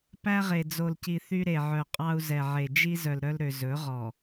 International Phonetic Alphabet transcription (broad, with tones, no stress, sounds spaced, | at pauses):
p æ˦ ʁ e˨ d͡z o˨ l c i˨ θ y˦ ɾ e˨ ʕ œ˨ qʼ ɑ˦ u̯ z ɛ˨ ʕ e˨ d͡ʒ i˦ z œ˨ l ɾ œ˦ l ɾ ø˨ z ɵ˨˦ ʁ ɔ˨